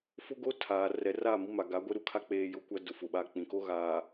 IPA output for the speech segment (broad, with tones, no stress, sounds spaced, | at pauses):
f ʊ˦ ɡ o˦ tʰ a˨ r ɛ˨ r a˦˨ m i˦ m a˨ ɡ a˨˦ ɡʷ e˦ ɾ u˨ kʰ a˦ k͡p eː˦ j ʊ˦ kʷ a˦ d ʊ˨ f ʊ˨ ɓ a˦ k͡p ĩ˨ k o˦ ɣ aː˨